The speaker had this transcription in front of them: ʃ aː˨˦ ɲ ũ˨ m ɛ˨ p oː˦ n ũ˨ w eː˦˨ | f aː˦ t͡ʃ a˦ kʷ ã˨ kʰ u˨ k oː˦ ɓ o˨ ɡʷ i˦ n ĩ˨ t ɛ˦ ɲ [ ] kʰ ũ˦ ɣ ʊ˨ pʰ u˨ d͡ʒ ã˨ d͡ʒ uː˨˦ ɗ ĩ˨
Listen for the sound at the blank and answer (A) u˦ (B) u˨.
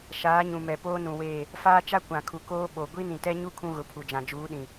A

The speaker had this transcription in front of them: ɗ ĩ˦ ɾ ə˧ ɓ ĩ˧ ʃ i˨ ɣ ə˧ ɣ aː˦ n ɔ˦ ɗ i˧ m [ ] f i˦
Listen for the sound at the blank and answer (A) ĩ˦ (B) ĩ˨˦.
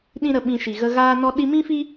A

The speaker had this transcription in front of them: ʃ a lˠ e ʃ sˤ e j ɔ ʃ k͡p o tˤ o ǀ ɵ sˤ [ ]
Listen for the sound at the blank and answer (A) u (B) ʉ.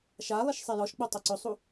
A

